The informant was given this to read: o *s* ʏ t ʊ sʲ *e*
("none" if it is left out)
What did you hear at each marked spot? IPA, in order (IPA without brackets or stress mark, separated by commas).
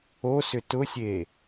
s, e